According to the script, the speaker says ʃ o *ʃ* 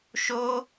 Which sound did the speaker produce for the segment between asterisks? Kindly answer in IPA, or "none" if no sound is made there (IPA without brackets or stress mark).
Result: none